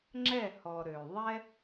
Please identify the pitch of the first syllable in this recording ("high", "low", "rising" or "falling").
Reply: falling